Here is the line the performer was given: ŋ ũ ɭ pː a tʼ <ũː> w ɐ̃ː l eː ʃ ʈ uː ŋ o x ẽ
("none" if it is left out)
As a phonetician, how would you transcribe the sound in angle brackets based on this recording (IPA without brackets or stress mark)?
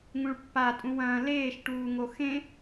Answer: ũ